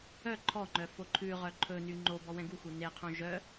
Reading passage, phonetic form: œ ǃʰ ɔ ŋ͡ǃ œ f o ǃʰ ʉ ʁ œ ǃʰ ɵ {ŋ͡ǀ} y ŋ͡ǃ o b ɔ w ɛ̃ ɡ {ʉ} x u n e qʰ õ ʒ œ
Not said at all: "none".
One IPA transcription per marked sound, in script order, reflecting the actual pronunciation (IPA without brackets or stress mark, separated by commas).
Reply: n, u